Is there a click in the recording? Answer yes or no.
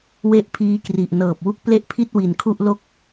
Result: no